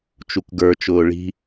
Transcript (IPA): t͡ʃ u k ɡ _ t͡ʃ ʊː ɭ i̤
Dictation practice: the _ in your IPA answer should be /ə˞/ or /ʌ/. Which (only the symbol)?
ə˞